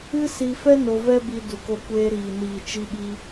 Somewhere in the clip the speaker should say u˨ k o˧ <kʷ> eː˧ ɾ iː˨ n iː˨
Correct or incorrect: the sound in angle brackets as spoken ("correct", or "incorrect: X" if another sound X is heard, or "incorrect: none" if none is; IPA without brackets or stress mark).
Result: correct